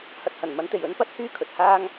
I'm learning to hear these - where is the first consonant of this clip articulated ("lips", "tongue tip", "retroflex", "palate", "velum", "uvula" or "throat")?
throat